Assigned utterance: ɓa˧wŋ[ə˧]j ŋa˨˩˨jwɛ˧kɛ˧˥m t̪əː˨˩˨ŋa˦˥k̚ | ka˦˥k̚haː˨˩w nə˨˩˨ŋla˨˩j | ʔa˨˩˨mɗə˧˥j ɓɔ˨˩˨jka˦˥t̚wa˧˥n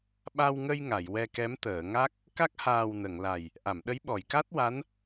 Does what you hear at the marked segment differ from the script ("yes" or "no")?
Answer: no